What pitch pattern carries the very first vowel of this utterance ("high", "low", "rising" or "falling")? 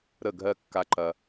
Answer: falling